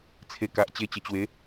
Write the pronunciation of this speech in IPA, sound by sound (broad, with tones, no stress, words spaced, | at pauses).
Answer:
t͡sʰe˧ ka˨ʔt͡ɕe˧t͡ɕə˨˩t͡ɕwe˨˦